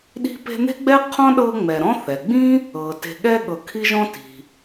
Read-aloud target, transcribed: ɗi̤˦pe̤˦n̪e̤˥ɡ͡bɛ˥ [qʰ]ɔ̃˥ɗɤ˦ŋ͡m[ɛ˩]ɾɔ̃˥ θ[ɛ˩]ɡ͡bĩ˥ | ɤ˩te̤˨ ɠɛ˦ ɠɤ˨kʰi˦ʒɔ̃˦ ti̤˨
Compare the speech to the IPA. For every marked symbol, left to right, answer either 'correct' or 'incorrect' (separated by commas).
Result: correct, incorrect, correct